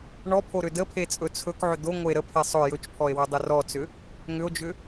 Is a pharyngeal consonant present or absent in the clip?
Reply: present